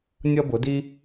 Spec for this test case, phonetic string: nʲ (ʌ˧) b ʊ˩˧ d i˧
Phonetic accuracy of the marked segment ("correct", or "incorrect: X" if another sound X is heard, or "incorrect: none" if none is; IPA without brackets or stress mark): correct